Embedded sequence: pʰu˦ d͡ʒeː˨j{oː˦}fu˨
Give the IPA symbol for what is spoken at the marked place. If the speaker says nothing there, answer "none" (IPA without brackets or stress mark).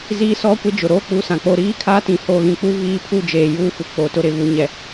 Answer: uː˦